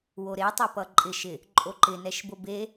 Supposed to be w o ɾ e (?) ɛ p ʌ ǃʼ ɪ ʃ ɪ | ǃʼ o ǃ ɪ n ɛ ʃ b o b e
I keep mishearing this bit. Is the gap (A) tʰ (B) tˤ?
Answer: B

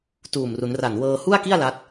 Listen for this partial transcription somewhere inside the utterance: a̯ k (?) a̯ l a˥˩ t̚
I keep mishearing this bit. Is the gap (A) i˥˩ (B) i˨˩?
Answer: A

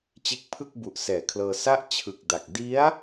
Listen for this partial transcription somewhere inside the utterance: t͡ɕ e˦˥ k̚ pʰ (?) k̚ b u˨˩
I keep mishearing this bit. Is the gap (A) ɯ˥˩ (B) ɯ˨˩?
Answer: A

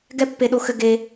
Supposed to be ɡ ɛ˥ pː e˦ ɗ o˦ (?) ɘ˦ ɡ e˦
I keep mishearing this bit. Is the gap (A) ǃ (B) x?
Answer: B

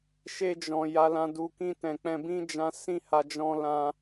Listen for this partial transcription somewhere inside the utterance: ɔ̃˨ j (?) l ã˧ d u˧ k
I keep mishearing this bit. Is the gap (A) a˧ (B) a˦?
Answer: A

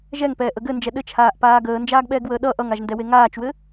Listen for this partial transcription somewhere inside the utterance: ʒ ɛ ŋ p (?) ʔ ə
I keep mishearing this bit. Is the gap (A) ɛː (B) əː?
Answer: A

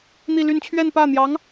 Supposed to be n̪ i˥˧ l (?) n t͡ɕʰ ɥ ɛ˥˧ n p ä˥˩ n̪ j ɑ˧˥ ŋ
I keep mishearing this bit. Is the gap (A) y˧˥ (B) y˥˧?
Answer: B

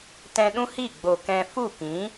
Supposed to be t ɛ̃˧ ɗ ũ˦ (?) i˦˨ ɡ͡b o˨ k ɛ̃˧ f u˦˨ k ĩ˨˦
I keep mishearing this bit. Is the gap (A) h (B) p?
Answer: A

